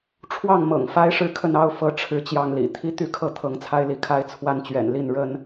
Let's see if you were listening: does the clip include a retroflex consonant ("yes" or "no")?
yes